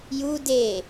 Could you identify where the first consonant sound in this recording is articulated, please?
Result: palatal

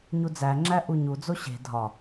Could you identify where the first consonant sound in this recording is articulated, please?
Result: palatal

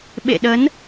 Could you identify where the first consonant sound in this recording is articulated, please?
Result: labial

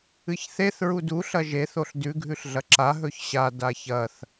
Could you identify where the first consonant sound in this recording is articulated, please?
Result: palatal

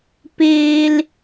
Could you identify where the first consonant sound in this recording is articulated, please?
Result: labial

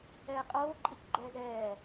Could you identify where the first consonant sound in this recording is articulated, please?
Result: uvular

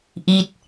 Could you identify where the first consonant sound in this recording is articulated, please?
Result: glottal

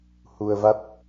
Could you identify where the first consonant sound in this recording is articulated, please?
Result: glottal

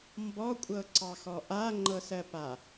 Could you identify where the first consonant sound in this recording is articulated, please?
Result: labial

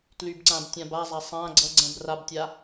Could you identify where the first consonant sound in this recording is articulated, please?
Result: alveolar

